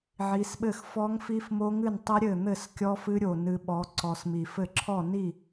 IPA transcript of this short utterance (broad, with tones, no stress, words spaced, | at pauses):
ʕi˨˦sɓɘ˥˩x fɔ˦˥ŋ fi˦˥fmo˦˥ ŋɨ˥˩ntˤɘ˦˥ ɾʲɘ˥˩n̪ɘ˥˩s kʲɔ˦˥fɨ˦˥ɾʲo˨˩ nɨ˨˦ɓɔ˨˦ ǀɔ˨˩smi˨˩fɘ˥˩ ǁʰɔ˥˩ni˥˩